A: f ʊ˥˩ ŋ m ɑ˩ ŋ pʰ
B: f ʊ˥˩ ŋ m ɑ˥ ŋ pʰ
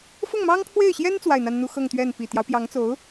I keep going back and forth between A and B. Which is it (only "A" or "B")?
B